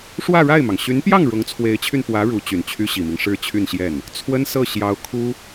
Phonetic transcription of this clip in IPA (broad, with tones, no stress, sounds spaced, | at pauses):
ʂ w ä˥˧ ɻ a˥˩ ɪ̯ m ɑ˩ ŋ ɕ y˧˥ n p j ɑ˥˩ ŋ ɻ ʊ˧˥ ŋ t͡sʰ w e˧˥ ɪ̯ t͡ɕʰ y˧ n p w ä˧˥ ɻ u˧˥ t͡ɕ y˨˩ n t͡ɕʰ y˥ ɕ i˨˩ m i˦ ŋ ʂ ɻ̩˥˧ t͡ɕʰ y˥˧ n ɕ j ɛ˥˩ n | t͡sʰ w ə˥ n s ɤ˥˩ ɕ j ɑ˧˥ ʊ̯ kʰ u˥